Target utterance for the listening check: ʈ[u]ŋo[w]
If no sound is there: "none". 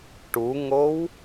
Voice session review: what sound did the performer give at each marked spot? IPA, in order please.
u, w

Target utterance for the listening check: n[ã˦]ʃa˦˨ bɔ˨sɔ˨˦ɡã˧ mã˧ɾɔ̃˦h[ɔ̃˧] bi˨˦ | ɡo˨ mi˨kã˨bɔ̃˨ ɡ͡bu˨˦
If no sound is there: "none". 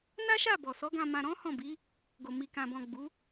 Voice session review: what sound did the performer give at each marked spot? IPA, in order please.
a˦, ɔ̃˦˨

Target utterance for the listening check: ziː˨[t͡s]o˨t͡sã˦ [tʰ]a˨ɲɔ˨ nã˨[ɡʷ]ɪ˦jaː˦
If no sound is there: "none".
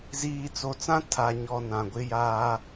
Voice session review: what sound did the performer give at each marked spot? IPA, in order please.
t͡s, tʰ, ɡʷ

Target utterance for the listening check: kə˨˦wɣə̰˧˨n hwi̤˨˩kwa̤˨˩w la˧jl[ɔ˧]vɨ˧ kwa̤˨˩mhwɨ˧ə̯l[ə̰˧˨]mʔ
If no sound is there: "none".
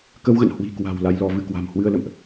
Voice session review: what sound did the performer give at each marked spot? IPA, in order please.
ɔ˧, ə̰˧˨

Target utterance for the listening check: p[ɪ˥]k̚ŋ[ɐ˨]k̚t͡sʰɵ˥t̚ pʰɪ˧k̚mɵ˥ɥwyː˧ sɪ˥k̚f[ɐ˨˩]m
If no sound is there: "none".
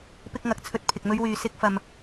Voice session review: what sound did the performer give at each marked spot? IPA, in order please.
ɪ˥, ɐ˨, ɐ˧

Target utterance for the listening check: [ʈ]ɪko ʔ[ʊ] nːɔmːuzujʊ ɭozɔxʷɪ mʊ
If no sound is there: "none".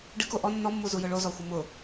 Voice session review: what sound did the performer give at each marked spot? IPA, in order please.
ɖ, ɔ

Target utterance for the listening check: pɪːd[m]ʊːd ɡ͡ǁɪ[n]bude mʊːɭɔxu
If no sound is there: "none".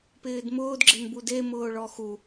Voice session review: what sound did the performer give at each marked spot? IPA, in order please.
m, n

